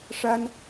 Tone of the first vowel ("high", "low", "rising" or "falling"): high